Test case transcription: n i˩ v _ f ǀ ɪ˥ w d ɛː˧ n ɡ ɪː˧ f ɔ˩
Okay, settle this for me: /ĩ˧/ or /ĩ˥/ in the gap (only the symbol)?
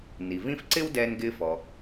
ĩ˥